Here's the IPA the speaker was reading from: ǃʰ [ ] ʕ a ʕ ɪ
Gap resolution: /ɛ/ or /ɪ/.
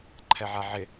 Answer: ɛ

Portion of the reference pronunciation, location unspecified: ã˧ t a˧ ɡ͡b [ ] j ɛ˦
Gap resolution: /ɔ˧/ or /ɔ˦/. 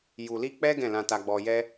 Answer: ɔ˧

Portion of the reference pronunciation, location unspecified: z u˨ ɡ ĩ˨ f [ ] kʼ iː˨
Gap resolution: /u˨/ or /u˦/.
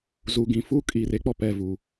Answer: u˦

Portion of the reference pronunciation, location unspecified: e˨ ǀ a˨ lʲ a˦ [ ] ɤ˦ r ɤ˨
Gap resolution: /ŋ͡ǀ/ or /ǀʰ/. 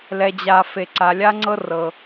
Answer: ŋ͡ǀ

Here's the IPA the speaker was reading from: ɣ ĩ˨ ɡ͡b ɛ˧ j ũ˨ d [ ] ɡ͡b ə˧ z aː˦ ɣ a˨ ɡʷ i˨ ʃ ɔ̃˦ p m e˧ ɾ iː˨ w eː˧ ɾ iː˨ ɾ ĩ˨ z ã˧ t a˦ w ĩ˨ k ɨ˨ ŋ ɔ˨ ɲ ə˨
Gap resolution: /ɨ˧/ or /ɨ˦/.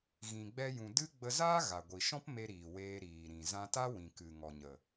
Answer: ɨ˦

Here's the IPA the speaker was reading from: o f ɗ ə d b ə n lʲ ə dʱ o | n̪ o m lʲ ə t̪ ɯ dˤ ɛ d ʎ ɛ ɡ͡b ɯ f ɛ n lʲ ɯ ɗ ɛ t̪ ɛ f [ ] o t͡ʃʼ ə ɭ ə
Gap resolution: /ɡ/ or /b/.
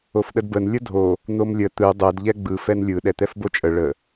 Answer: b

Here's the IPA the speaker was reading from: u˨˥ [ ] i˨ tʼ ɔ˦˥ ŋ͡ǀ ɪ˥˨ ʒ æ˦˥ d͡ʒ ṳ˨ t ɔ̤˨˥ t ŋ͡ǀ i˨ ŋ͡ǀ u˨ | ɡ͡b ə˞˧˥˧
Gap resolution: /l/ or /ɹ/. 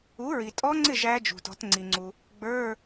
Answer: ɹ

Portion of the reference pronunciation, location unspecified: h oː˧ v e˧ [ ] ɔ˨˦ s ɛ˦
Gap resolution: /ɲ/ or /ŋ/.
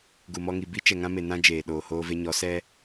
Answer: ɲ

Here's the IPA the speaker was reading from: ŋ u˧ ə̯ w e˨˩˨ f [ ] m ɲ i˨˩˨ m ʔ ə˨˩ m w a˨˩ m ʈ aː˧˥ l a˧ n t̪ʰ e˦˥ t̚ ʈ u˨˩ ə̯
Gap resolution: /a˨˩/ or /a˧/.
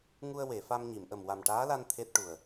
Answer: a˧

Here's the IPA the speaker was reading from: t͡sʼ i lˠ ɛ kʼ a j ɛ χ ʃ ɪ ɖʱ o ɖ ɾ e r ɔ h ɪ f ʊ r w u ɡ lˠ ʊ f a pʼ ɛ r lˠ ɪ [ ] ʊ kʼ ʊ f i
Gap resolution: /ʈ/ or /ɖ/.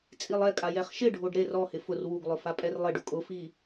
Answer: ɖ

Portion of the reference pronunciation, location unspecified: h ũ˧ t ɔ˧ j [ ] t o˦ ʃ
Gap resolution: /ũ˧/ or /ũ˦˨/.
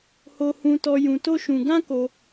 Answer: ũ˧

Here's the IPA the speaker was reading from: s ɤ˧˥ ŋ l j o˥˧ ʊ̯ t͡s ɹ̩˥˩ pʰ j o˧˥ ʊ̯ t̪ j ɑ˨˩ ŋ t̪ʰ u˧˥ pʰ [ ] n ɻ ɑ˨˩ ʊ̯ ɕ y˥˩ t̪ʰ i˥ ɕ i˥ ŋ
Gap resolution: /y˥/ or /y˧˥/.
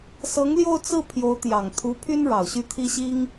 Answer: y˥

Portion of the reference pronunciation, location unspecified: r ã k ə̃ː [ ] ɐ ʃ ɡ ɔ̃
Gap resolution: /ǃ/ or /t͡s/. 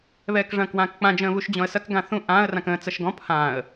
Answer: t͡s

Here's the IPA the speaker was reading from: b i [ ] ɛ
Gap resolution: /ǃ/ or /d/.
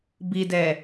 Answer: d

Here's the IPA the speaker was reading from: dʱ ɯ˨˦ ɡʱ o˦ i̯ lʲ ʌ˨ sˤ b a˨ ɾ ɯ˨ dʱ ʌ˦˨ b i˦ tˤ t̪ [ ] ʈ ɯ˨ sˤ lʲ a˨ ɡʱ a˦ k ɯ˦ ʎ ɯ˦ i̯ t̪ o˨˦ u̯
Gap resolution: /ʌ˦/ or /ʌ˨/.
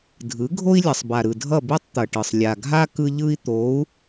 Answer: ʌ˨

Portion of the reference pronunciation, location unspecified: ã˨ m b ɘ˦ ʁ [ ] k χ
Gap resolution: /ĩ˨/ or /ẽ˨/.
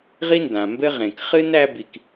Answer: ẽ˨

